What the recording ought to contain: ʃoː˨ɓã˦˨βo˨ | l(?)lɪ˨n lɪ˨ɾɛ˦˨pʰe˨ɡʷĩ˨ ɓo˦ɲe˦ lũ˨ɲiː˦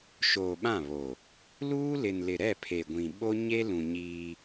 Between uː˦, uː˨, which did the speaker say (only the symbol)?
uː˦